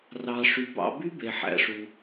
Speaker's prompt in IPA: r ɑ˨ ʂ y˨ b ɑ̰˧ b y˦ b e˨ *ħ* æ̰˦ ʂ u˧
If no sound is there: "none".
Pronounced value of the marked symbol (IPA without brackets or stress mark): ħ